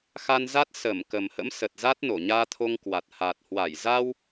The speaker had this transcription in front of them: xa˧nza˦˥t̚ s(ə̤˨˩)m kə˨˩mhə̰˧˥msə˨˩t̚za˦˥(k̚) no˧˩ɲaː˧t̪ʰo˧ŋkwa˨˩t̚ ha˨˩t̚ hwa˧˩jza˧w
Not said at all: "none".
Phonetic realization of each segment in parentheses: ə˧˩, t̚

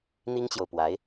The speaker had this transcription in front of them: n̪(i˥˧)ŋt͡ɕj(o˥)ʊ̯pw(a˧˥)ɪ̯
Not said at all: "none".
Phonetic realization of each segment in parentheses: i˥, o˨, a˧˥

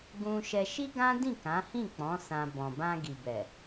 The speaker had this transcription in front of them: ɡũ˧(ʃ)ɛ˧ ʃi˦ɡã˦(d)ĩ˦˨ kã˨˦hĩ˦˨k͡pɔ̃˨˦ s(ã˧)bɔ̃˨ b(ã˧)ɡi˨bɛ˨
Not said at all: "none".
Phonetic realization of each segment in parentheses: ʃ, d, ã˧, ã˧

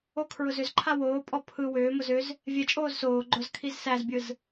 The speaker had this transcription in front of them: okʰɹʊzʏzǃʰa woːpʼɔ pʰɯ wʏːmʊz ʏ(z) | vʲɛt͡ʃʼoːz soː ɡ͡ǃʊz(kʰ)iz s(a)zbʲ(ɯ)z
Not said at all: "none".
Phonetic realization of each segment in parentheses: z, kʰ, æ, ɯ

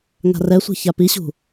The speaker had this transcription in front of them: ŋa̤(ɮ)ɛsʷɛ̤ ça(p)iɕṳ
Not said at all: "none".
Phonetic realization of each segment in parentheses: r, p

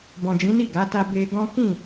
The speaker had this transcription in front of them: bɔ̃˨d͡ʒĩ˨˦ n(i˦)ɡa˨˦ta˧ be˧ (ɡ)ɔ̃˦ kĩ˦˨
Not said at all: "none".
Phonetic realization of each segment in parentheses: i˦˨, ɡ

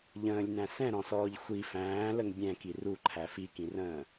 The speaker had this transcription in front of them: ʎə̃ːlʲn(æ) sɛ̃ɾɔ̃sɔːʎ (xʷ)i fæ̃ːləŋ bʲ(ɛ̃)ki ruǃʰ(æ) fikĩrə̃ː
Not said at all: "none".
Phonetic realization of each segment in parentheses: æ̃, xʷ, ɛ̃, æ

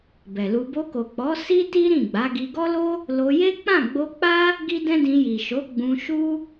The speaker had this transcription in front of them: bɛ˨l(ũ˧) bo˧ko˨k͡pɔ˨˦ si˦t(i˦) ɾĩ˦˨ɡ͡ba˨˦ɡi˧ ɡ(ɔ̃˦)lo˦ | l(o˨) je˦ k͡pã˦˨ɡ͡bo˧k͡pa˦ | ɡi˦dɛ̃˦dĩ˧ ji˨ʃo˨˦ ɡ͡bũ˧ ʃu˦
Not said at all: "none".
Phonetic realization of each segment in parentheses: u˧, i˦, ɔ˦, o˧

